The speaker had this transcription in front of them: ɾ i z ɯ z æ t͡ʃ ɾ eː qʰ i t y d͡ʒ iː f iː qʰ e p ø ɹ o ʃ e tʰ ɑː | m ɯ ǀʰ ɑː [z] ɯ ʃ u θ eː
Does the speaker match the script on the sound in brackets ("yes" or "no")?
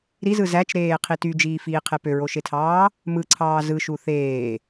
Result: yes